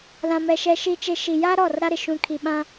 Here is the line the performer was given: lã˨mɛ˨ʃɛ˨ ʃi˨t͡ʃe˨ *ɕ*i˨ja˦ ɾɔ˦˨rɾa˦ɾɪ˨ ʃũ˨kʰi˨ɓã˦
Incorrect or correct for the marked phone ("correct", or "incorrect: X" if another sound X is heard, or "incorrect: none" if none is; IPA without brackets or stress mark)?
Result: incorrect: ʃ